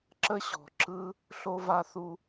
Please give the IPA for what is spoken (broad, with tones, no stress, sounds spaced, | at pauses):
ǁ ə˦ ɕ ɔ̤˨ ǁ ɯ˧ | ɬ o˧ v a˧ θ u˧